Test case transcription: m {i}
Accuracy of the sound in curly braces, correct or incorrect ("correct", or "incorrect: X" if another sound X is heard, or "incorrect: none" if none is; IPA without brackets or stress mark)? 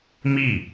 correct